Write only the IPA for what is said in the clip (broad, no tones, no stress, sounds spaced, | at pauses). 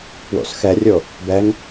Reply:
p w o̰ s x ɛ rʲ o | b ɛ ŋ